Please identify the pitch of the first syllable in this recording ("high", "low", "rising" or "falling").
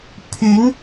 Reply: rising